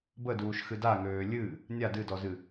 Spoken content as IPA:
b ə d uː ʃ x ɨ d a ŋ øː lʲ ɨ | nʲ a d ɨ d ɔ z ɨ

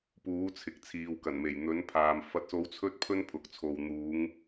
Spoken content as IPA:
p uː˨˥ t͡sʰ ɪ˨ k̚ t͡sʰ iː˨ w k ɐ˨˩ n m e˨˩ j n̪ ɵ˨˥ n pʰ aː˨ m f ɐ˧ t̚ s o˧ w t͡sʰ ɵ˥ t̚ pʰ ɵ˥ n pʰ ʊ˨ k̚ t͡sʰ o˨ w n̪ uː˨˥ ŋ

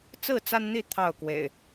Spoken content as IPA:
t͡s ɹ̩˥˨ t͡s a˦ n n̪ i˥˨ t̪ʰ ɑ˥˨ ʊ̯ k w ḛ˨˩ ɪ̯

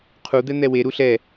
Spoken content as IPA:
qʰ u d̪ ɛ n̪ ɛ w e ɾ u ɬ ɛ

